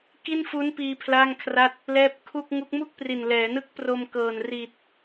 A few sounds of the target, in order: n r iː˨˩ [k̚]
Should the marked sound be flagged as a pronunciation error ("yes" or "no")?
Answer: yes